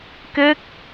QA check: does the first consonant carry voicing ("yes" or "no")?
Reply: no